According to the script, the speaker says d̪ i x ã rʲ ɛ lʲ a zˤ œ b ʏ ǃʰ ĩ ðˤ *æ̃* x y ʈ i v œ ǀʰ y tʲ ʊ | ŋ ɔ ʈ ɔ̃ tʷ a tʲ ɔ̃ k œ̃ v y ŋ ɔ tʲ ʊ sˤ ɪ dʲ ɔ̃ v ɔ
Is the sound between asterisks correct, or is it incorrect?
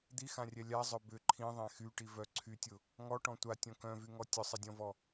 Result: incorrect